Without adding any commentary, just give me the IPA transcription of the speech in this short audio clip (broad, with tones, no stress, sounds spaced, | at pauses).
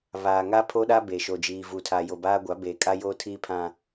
β aː˨ ŋ a˦ pʰ o˦ ɗ a˦ b eː˨ ʃ o˨ d͡ʒ iː˨ v uː˨ tʰ a˨ j o˨ b aː˦ ɡʷ a˨˦ b eː˨ kʼ a˦ j oː˦ tʰ iː˦ pʰ ã˦